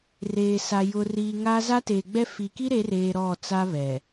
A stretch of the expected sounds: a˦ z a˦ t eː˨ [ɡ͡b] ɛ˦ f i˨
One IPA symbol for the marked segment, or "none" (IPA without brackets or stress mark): ɡ͡b